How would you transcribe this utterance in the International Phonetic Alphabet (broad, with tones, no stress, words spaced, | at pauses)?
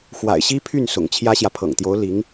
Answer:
xwa̰˨˩ɪ̯ɕi˥pʰy˥˩n sʊ̰˨˩ŋt͡ɕʰjä˥ɕjä˨ pʰɤ̰˨˩ŋt̪jo˧˥ʊ̯ li˧˥ŋ